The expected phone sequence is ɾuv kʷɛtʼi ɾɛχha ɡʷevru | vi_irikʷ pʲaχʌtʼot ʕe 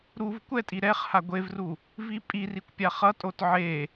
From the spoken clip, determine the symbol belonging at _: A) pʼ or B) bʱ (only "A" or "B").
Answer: A